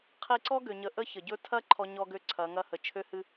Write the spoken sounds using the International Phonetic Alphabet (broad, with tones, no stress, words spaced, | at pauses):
qʰi˧ǀɔ˥ɡø˩ɲə˩˧ ʔə˧˥çə˩ɟɵ˧ tʰɐ˥ ǃʰɔ˧ɲɔ˧ɡø˧ ǀʰɐ˩˧ ŋɐ˧hə˩t͡ʃʰø˧˥ hɨ˧